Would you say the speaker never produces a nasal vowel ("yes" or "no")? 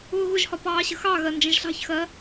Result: no